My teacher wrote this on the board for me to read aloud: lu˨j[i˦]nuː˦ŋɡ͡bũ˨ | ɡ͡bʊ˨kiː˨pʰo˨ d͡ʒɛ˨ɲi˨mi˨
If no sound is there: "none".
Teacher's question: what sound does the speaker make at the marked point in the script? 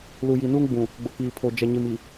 i˨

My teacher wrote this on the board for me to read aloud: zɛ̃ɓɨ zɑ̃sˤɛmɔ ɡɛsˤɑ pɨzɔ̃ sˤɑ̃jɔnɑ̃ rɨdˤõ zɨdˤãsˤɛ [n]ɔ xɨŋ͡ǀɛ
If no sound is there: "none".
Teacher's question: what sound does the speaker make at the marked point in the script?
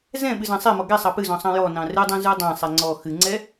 ŋ͡ǀ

